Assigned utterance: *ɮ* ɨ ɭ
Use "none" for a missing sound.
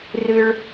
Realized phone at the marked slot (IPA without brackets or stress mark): r